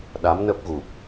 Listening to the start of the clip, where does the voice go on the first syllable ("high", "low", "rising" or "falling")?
rising